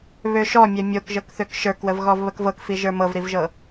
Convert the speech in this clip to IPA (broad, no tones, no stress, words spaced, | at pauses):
βøʃɔmʲɛ mʲokʒɤk θøkʃə˞kwəv ɣɔvβəkvɤkfi ʒə˞mɤvɾivʒɤ